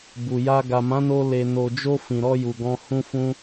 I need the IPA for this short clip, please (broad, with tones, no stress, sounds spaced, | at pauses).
b u˨ j a˧ ɡ a˨ m ã˨˦ n o˧ l e˨ n o˨ d͡ʒ o˧ f ĩ˨ ɾ ɔ˧ j u˨ ɡ ɔ̃˧ h ũ˧ f ũ˧